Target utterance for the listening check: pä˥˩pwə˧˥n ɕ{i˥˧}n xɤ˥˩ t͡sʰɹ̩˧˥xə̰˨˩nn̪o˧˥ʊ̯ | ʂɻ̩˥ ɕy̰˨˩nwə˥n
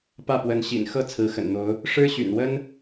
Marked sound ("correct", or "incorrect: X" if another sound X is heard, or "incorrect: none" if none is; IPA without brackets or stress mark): incorrect: ḭ˨˩